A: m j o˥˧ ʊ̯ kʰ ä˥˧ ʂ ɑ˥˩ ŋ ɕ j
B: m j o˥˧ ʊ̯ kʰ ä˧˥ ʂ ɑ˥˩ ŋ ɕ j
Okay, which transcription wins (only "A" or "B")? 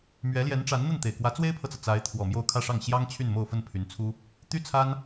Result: A